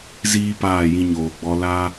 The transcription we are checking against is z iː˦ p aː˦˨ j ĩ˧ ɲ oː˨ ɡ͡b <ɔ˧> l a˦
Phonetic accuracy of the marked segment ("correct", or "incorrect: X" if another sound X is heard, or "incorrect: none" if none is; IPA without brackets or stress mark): correct